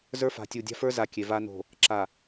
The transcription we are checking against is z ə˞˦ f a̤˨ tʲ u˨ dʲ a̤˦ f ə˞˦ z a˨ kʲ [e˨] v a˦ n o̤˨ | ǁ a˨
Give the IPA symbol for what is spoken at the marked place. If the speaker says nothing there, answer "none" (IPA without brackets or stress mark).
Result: e˨